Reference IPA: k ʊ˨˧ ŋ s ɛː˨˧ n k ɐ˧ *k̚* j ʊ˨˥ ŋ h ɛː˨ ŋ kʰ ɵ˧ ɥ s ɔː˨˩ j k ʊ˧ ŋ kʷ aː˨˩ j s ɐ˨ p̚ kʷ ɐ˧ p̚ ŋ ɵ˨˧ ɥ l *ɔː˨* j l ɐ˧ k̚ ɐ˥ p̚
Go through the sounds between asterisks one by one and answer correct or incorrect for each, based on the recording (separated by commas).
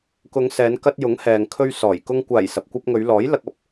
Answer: incorrect, incorrect